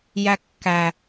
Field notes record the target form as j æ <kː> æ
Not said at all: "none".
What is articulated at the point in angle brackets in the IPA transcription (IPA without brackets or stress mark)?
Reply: kː